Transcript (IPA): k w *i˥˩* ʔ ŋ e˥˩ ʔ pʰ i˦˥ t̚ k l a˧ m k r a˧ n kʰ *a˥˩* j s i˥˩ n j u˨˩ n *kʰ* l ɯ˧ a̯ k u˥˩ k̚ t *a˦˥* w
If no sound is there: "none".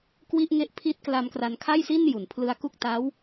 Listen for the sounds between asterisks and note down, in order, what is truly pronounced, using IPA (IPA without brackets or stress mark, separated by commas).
i˥˩, a˥˩, pʰ, a˦˥